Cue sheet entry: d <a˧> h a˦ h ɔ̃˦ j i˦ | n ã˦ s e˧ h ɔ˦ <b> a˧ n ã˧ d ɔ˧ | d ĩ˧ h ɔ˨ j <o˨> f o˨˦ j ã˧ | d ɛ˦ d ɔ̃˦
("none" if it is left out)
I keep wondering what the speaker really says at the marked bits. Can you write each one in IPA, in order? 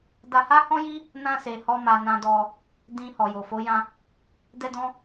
a˧, m, o˨

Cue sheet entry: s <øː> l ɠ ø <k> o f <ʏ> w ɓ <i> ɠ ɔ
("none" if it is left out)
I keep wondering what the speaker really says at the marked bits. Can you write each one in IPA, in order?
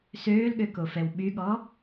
øː, k, ɛ, y

